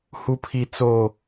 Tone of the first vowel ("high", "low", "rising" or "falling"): high